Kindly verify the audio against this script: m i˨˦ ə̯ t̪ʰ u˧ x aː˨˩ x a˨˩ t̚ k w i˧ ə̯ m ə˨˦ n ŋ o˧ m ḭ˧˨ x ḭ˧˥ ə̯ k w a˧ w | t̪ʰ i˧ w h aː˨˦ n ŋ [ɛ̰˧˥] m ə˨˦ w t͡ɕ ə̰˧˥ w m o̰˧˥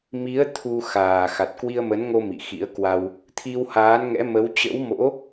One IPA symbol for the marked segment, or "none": ɛ̰˧˥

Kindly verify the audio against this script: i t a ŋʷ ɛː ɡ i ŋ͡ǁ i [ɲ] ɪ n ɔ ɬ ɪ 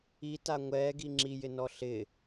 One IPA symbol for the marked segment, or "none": j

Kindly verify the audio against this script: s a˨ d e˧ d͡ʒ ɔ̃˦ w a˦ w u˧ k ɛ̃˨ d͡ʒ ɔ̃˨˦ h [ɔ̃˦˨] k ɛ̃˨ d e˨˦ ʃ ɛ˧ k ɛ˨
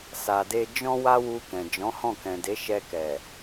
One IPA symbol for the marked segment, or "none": ɔ̃˦˨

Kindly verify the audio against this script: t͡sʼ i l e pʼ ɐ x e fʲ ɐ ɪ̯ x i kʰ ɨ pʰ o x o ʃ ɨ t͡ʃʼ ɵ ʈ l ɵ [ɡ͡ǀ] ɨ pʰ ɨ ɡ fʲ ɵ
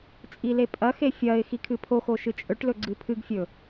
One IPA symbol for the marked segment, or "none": ɡ͡ǀ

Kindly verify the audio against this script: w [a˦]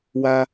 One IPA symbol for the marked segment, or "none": a˦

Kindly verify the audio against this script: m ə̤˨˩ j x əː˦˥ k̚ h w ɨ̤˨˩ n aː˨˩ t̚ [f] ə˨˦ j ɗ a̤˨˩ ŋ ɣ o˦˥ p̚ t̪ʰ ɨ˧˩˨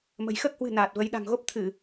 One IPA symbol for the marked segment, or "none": v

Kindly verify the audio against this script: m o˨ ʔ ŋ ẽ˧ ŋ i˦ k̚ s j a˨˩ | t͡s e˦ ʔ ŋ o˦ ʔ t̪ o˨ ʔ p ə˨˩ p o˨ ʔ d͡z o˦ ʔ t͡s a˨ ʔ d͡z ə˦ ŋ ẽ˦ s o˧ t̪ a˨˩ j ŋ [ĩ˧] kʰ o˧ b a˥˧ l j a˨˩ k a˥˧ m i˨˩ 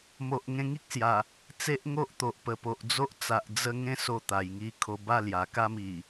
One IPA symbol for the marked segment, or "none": i˧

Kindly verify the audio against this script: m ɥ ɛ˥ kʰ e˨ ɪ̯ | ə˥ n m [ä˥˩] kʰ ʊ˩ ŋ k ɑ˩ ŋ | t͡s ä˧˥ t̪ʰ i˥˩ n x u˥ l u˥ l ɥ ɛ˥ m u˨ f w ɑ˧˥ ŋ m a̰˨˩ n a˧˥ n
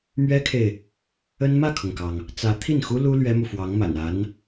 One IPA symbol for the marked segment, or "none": ä˥˩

